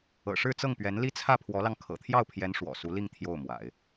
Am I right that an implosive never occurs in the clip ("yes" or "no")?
yes